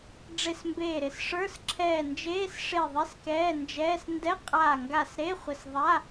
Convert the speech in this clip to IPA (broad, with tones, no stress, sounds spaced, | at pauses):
ɖ͡ʐ e˧˩ s m b eː˧˩ ɾ ɪ˧˩ s ʂ ə˞˧˥˧ s ǁʰ ɛː˧˩ n d͡ʒ eː˧˥˧ s ʂ e˧˩ ðˤ ɪ˧˥˧ s k ɛː˧˥˧ n d͡ʒ ɛː˧˥˧ s n d ɛ˧˥˧ qʼ aː˧˩ ŋ ɡ a˧˩ s ɾ e˧˥˧ χʷ ɪ˧˩ s ðˤ a˧˥˧